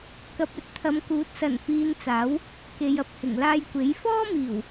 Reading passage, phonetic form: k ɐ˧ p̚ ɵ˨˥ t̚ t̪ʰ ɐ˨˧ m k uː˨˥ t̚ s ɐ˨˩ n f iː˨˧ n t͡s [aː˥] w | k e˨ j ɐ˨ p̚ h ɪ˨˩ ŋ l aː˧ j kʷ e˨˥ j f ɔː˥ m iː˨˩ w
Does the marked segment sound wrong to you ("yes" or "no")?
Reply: yes